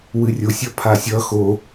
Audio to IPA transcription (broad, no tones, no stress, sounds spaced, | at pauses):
w ɨ rʲ o sʲ ʌ pʰ a sʲ ʌ x o